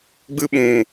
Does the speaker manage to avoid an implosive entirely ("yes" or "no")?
no